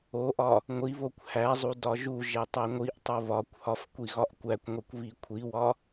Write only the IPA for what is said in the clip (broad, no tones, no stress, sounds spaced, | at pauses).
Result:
o ʔ ɒ | ŋʷ i β o kʷ h æ zˤ u d ɒ ʒ u ʒ e tˤ e ŋʷ i ʔ tˤ o β ɒ kʷ h ɒ f kʷ i ɣ ɒ ʔ kʷ æ kʷ ŋʷ i kʷ β i kʷʰ i w ɒ